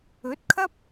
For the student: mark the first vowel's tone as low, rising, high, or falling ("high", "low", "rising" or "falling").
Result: rising